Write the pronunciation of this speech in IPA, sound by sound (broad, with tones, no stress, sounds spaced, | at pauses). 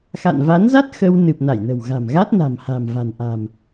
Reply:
x a̰˧˨ n v a˨˦ n z a˦˥ t̚ x ə˧ w n ɨ˨˩ p̚ n a˧˩ j n ə̤˨˩ w ɣ a̤˨˩ m ɣ a˦˥ t̚ n a̤˨˩ m h a̤˨˩ m v a̤˨˩ n ʔ a̤˨˩ m